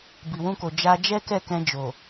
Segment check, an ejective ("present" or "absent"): absent